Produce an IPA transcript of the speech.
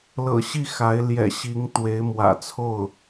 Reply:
l ɤ̰˨˩ ɕ i˥˩ x a˧˥ ɪ̯ l j ɛ̰˨˩ ɕ i˧˥ ŋ t̪ w e˧˥ ɪ̯ m w ä̰˨˩ t͡sʰ o˥˩ ʊ̯

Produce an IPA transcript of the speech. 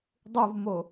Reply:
dˤ u v m o

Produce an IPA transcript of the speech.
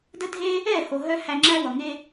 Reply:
d ə˦ dʱ e˦ | ɛ˦˨ h o˨ ɦ œ˧ h æ˧ ŋ͡ǁ æ˦ w ʌ˨ ŋ e˧

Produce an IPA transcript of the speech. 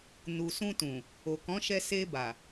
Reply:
n u˨ s ũ˧ t ũ˨ | o˨ k ɔ̃˨˦ ʃ ɛ˧ s e˧ b a˨

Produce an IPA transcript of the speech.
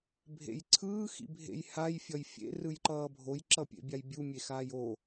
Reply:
bʱ ḛ j ǀʰ ɯː x ḭ bʱ ḛ j h a j fʲ ʌ j fʲ ḛ r ɯ j ǃ ʌː bʱ o j ǁ ʌ pʲ ḛ bʲ a j bʲ u mʲ e x aː j o

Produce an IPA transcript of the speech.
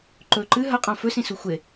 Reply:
ǃ ɵ ǃ ɨ ɦ ɐ qʼ ã f ɵ s ĩ s u xʷ e

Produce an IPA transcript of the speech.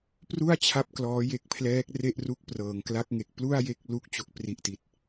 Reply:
p r u˥˩ a̯ t͡ɕʰ a˥˩ p̚ k l ɔː˦˥ j e˦˥ k̚ pʰ l ɛː˦˥ k̚ r e˥˩ ʔ r u˦˥ k̚ p r ɤː˩˦ ŋ k l a˦˥ k̚ ŋ e˨˩ k̚ p l u˥˩ a̯ j e˥˩ k̚ l u˦˥ k̚ t͡ɕ o˥˩ k̚ p r i˦˥ ʔ t i˨˩ t̚

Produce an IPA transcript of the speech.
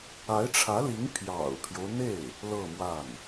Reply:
a˧˥ ɪ̯ ʈ͡ʂʰ ä˧˥ l i˧˥ ŋ pʰ j ɑ̰˨˩ ʊ̯ pʰ j o˦ ʊ̯ n̪ e˥˩ ɪ̯ | l ɤ˥˧ m w a˥˩ n

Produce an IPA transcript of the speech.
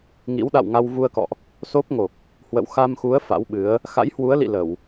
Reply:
ŋ ḭ˧˥ w ɗ a̰˧˨ w ŋ a˧ w v u˧ ə̯ k ɔ̰˧˨ ʔ | s o˦˥ p̚ ŋ o˨˩ k̚ | h w ə̰˧˨ w x a˧ m x u˨˦ ə̯ f a̰˧˥ w ɓ ɨ˨˦ ə̯ | x a̰˧˥ j h w u˨˦ ə̯ l ḭ˧˨ l ə˧˩˨ w

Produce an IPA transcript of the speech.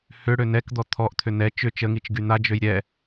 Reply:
h ʏ ɽ ø n ɛ k d̪ ɔ t̪ʰ ɔ ʔ t̪ʰ ʏ n ɛ t͡ʃ ʏ t͡ʃ ə ŋ i t͡ʃ ɡ y n̪ a d͡ʒ ø j ɾʲ ɛ

